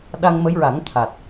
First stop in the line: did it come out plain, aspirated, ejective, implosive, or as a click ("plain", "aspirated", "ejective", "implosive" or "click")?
implosive